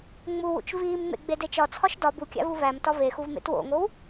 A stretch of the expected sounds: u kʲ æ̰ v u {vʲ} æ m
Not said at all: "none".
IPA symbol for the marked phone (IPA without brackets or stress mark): v